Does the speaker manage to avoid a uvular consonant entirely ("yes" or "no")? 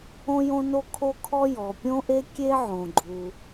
yes